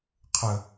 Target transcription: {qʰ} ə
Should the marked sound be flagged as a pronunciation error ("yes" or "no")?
no